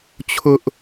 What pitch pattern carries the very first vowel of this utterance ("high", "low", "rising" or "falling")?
high